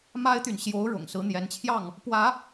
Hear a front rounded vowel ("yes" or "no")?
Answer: yes